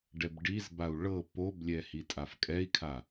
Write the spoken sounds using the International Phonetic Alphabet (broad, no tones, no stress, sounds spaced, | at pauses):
ɖ ɛ b ɖ i z b a u̯ ɭ ɤ p o b lʲ ɛ h i tʼ a f kʼ ɛ i̯ kʰ a